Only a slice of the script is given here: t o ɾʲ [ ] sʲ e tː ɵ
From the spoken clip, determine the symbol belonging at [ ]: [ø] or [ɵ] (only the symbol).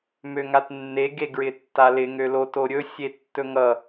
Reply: ɵ